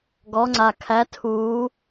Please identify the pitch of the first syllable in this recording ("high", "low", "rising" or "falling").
rising